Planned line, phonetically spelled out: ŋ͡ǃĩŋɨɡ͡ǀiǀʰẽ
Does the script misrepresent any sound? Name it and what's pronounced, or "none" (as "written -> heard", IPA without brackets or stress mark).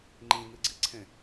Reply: ɨ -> i